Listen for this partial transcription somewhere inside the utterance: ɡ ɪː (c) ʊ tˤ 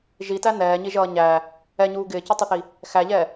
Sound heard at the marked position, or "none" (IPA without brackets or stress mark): c